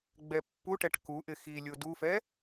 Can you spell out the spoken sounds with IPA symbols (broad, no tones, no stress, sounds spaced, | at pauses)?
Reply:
ɡ͡b ɛ pː u ʈ ɛ ʈ k u ʔ ɪ x i lʲ o d u f ɛ